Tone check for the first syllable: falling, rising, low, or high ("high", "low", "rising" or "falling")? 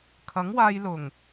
rising